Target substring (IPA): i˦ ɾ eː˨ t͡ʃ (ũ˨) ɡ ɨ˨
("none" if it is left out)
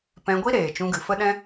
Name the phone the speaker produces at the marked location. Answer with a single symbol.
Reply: ũ˧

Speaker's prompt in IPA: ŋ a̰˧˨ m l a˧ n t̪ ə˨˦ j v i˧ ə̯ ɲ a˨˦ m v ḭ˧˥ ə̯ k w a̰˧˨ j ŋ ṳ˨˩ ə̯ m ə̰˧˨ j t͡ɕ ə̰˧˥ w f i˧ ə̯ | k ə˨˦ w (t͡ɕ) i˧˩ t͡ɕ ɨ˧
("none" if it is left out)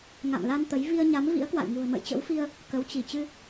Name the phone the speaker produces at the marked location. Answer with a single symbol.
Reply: t͡ɕ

